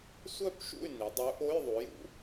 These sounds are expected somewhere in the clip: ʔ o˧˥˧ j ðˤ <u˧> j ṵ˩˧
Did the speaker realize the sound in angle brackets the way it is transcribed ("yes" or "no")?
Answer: no